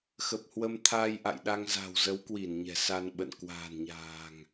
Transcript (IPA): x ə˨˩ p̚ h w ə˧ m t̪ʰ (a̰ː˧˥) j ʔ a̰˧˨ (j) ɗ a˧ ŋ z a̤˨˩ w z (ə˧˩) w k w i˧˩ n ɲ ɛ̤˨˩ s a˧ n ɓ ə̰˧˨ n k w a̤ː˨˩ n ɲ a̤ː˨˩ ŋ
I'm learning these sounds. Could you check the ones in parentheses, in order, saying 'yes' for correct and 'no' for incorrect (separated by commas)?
no, yes, no